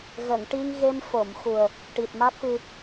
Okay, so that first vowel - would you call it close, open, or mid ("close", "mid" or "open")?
mid